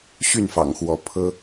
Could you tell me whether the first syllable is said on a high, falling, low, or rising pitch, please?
falling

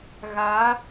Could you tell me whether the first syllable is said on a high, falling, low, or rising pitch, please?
rising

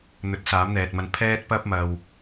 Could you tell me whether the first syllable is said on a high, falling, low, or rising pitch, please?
rising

